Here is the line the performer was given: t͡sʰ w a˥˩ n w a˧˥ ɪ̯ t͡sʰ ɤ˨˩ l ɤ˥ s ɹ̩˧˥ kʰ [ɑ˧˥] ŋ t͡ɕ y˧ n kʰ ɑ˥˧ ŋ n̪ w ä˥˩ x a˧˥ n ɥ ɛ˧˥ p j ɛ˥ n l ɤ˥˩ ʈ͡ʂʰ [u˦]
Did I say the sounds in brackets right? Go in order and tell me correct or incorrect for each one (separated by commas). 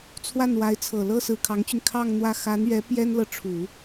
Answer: correct, incorrect